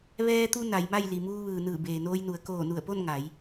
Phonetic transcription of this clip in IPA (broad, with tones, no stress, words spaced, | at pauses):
ʋɛː˧t̪u˧ na˩˧jma˥˨j li˩muː˧ʋɯː˩ nɯː˧˩beː˩noː˧jnu˩˧ə̯ koː˧˩nu˧˩ə̯po˥˨n ŋa˩˧j